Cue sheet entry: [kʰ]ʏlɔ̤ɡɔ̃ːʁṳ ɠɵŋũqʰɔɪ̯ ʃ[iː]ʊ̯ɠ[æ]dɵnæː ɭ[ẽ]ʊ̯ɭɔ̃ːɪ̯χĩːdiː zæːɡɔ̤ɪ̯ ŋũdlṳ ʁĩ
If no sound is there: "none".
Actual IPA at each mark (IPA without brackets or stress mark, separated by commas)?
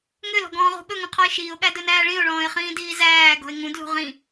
ŋ, iː, æ, ĩ